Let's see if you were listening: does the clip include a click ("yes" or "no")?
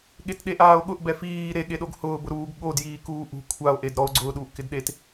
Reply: yes